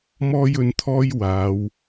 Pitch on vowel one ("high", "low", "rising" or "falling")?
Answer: high